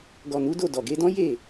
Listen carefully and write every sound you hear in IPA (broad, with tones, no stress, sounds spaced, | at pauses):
ɡ ɔ˨ n u˨˦ d o˦˨ d ɔ˨ ɡ e˧ d ɔ̃˦ j e˦˨